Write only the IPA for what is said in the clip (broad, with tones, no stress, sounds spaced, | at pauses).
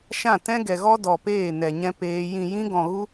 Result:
ʃ ã˦˨ t ɛ̃˦ ɡ ɛ˧ ɣ ɔ˦ d ɔ˧ p eː˦˨ n ɛ˧ ɲ ɛ̃˦ p eː˦ j ĩ˧ j ĩ˦ ɡ ɔ̃˧ ɣ u˦